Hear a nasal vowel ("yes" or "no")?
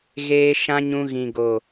yes